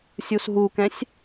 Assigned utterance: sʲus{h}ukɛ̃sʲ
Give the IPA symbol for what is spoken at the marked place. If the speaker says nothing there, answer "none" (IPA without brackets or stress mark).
ɦ